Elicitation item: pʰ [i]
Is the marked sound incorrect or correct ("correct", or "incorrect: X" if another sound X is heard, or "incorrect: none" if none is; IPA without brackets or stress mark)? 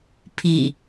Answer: correct